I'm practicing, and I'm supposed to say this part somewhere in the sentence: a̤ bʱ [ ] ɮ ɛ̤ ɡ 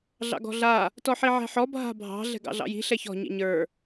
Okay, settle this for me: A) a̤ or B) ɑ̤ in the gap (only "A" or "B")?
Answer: B